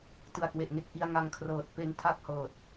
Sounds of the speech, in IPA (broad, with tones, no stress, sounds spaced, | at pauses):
t ɯ˨˩ a̯ k w e˨˩ ʔ ŋ e˦˥ k̚ ʔ i˧ a̯ ŋ a˧ ŋ kʰ r ɤː˨˩ t̚ p e˧ n tʰ a˥˩ k̚ h ɤː˨˩ t̚